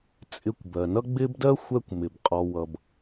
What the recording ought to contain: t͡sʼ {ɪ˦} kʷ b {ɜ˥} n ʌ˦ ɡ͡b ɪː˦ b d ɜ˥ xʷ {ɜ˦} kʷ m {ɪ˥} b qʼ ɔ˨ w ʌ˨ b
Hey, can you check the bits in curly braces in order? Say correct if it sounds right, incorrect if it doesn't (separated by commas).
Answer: incorrect, incorrect, incorrect, incorrect